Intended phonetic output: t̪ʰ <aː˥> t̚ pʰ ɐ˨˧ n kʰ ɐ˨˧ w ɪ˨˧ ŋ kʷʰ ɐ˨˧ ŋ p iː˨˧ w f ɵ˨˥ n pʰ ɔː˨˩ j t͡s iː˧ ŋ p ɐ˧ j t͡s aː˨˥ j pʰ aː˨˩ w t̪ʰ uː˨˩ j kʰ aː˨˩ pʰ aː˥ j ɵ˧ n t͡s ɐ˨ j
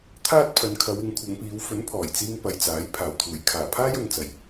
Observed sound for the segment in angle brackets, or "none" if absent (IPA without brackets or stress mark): aː˥